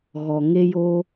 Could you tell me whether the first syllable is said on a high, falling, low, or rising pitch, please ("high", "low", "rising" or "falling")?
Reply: low